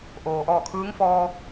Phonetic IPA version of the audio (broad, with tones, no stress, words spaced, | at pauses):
ʔoː˩ʔɔː˧˩ kʰɯː˧˥ŋfɔː˧